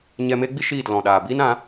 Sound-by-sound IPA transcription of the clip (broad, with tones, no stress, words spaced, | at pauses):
ɲɛ˧me˦ɡ͡bi˦ ʃiː˦˨tlɔ̃˨ ɗaː˨biː˦nã˨˦